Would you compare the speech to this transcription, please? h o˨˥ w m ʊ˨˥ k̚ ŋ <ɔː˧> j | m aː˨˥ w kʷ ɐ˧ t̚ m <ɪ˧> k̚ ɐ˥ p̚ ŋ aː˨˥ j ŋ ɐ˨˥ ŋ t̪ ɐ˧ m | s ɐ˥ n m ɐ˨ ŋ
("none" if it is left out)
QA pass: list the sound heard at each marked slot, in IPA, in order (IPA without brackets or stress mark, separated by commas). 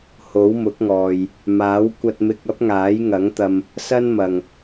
ɔː˨, ɪ˧